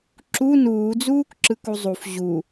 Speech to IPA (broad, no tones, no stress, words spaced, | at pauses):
ǁu nuːd͡zuːkǁɯk uzˤuf ʑu